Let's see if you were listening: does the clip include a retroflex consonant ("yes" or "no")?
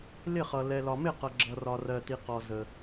no